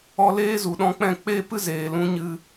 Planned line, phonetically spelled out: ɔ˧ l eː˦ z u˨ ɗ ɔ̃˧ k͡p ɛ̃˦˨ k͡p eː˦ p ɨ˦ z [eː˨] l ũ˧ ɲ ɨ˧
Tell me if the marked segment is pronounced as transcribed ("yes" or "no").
yes